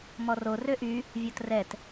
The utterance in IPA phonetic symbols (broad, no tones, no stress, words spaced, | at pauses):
mɔro røʔy | vʲotrɛt